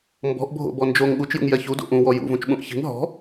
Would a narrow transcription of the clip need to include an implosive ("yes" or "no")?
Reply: yes